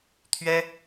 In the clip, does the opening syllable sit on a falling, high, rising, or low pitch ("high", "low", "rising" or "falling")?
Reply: high